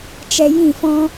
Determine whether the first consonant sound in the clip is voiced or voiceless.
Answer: voiceless